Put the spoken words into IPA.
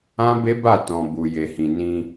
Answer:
ã˦ b e˦ b a˦˨ t ɔ̃˨ b u˨ j e˨ h ĩ˨ n ĩ˧

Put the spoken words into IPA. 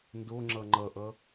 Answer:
n d o ŋ͡ǁ ʌ ŋ͡ǃ ʌ ʔ ʌ

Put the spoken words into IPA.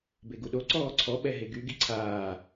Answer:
b e ɡ u ɗ o ǀ ɔː ǀʰ ɔ ɓ ɛ ɦ e ɡ y ɡ i ǀʰ aː

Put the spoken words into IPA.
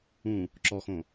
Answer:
ũ | ǁ ɔ x õ

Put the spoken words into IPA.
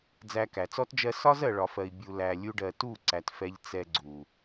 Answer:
d͡z æ˧ k æ˨ t͡s ɔ˦ t d͡ʒ ɜ˧ s ɒ˦ z ɜ˨ ɭ ɒ˨ f ɜ˨ i̯ bʲ u˨ l æ˨ lʲ u˧ ɖ ɜ˨ t u˦˨ ǀ æ˨ t f ɛ˧ ʎ t͡s ɛ˧ ɡ͡ǀ u˨

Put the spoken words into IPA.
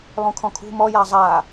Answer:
lˠ ũ kʰ ɔ̃ kʰ ṳ m ɔ j a zˤ a

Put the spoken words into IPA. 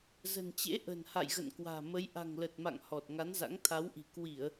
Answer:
z ə̤˨˩ n t͡ɕ ḛ˧˥ ʔ ə̤˨˩ n h a̰˧˨ j ɣ ə̰˧˨ n k w a̤ː˨˩ m ə˨˦ j ʔ a̤˨˩ ŋ l ə˨˩ t̚ m a̰˧˨ ŋ h ɔ˨˩ t̚ ŋ a˨˦ n z a̰˧˥ ŋ t̪ʰ a˨˦ w ʔ i̤˨˩ k w i˧˩˨ ə̯

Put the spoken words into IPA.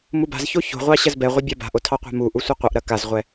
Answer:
m u b a̤ z ç o ç o̤ ʁʷ ɑ ɕ ɐ z b ɛ ʁʷ ɐ bʲ a b a̤ ʔ o tʰ ɑ qʷ a̤ m u ʔ u sʷ ʌ qʷ ʌ ʔ ɾ ɐ k a z ʁʷ ɛ

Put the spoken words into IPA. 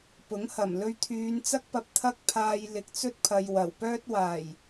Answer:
p ʊ˨˥ ŋ h ɐ˨˩ m l ɵ˧ ɥ t̪ʰ yː˨˧ n t͡s ɐ˥ k̚ p ɐ˧ p̚ t̪ʰ ɐ˥ k̚ pʰ aː˧ j l ɪ˨ k̚ t͡s ɵ˥ t̚ pʰ ɐ˨ j w ɐ˨˩ w p œː˥ t̚ w aː˨˩ j

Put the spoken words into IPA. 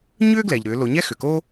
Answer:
ɲ ʏː˥ ɡ l ɛ˩ ʎ ɾ ʏː˩˧ l o˩˧ ɲ ɛ˥ x ʏ˩ k oː˥

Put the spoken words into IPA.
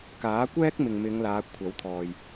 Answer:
k aː˨˥ kʷ ɛː˥ k̚ m ɪ˨ ŋ m ɪ˨˧ ŋ l aː˨˧ kʷʰ ɐ˨˥ w t̪ʰ ɔː˨ j

